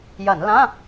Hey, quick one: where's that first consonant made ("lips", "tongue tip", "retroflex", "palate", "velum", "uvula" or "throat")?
palate